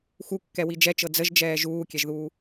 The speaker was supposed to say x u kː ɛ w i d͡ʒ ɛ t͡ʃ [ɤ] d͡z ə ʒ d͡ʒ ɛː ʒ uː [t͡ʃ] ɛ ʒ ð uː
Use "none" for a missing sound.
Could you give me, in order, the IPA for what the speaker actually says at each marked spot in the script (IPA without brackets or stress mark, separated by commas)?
ɤ, kʲ